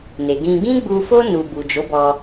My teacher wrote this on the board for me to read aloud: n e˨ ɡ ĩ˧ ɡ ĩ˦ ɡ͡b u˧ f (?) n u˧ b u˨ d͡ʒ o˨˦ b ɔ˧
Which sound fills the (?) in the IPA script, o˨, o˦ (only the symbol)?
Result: o˦